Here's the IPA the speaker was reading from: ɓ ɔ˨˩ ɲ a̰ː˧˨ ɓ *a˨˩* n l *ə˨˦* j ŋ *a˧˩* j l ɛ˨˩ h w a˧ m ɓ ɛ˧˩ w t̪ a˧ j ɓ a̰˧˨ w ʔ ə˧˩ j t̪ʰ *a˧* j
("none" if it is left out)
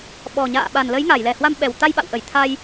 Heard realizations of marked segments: a˨˩, ə˨˦, a˧˩, a˧

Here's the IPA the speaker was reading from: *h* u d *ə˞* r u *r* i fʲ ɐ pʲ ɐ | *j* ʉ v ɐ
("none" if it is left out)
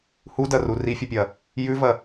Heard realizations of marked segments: h, ɐ, r, j

